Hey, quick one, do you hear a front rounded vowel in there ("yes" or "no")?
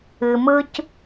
no